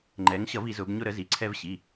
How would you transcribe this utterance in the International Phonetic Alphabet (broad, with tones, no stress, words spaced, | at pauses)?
ŋ͡ǃɛ˩˧ŋɕʌ˧˩˧v i˩˧zʊ˩˧b ɲʊ˧ɾə˩˧zi˩˧ ǀʰɛ˧vɕi˩˧˩